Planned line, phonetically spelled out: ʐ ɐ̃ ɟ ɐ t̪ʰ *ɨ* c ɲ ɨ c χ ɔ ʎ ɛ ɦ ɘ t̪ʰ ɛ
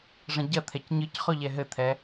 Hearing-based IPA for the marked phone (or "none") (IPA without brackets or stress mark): ɛ